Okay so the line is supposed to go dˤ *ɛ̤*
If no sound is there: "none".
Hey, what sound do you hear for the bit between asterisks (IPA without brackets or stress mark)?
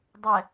ɛ